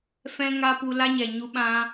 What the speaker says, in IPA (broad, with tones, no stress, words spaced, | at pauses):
fɛ̃˦ŋa˦pu˧ la˦ɲɛ˨ ɲu˧ɓã˧